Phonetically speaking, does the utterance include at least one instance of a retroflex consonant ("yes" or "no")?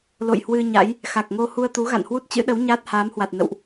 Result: no